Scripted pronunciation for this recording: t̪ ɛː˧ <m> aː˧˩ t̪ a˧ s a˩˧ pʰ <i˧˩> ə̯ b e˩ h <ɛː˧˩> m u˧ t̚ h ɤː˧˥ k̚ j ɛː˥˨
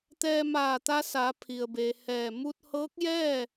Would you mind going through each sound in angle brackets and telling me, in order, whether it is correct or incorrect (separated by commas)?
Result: correct, incorrect, correct